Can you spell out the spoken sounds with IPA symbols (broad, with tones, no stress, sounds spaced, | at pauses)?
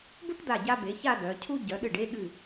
b u˥ ʈ d̪ a˧˩ ɟ a˧ b e˩˧ ç a˥˧ d œ˩˧ cʰ u˥ ɟ œ˩˧ ɗ ɨ˧˩ ɖ e˥˧ ɠ ɨ˧˩